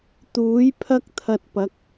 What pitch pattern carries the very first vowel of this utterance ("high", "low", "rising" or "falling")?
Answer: rising